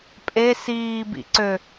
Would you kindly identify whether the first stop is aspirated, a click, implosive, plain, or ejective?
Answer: ejective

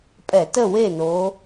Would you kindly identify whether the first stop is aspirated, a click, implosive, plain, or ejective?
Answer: ejective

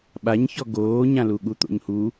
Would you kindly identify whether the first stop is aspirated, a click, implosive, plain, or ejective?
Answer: implosive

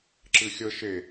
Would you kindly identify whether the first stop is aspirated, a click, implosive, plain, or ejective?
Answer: click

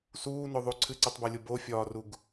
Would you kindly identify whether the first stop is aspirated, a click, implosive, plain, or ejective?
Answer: click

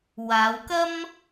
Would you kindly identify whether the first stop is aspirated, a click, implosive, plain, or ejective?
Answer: plain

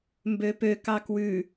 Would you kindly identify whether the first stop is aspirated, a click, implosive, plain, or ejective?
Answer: plain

